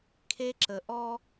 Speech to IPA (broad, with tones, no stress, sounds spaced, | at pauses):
kʰ e˦ ǁ ə˨ ʔ ɔ˦